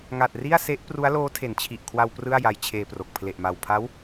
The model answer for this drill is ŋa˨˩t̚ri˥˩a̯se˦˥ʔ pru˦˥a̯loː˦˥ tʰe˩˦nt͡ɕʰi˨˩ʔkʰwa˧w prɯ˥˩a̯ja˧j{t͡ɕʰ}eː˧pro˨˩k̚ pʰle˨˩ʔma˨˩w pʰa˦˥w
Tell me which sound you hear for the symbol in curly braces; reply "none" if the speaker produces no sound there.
t͡ɕʰ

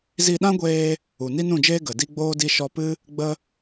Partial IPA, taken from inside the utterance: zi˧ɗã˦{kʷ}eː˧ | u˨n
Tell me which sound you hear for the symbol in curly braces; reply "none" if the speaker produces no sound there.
ɡʷ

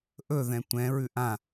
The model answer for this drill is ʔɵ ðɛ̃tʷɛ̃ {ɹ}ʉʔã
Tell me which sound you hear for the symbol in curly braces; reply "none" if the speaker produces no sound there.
ɹ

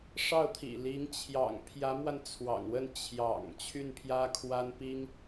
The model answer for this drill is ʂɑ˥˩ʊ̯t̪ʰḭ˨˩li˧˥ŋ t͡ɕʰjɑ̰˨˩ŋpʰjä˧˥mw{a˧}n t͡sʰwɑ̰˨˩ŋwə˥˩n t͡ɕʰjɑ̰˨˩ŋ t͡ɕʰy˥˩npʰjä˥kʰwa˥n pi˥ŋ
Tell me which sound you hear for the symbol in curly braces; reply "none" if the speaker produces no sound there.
a˧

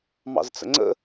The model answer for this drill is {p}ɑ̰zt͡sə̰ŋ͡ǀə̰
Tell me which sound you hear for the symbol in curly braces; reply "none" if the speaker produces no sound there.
m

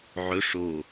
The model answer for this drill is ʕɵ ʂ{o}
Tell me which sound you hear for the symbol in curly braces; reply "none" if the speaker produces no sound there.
o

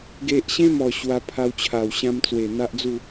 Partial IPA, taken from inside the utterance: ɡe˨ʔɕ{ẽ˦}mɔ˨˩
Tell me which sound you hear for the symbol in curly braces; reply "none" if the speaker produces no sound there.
ẽ˦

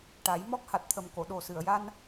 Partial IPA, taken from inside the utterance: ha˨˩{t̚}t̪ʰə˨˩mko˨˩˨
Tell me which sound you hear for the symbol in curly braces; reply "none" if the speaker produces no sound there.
t̚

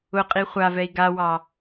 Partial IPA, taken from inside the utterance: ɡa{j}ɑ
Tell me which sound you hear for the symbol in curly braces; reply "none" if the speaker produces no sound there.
w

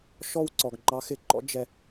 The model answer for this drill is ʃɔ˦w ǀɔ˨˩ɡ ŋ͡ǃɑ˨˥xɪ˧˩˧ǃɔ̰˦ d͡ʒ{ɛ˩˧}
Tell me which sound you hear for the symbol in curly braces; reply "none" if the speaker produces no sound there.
ɛ˧˩˧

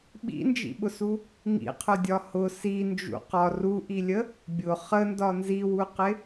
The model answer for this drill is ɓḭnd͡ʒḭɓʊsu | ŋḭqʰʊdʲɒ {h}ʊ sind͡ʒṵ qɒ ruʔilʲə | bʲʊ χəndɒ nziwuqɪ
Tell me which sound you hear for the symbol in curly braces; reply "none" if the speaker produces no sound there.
h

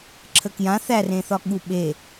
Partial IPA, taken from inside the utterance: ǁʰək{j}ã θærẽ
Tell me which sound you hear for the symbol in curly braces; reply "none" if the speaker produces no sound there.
j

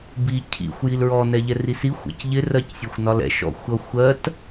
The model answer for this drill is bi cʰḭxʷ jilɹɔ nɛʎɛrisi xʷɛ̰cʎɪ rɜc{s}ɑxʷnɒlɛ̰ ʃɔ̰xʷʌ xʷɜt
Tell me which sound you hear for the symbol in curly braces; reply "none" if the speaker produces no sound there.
sʲ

